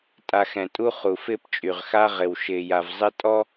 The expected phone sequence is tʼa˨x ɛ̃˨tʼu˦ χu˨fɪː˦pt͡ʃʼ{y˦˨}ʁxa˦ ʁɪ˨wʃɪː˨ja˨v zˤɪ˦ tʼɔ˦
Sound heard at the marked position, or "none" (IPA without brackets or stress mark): y˨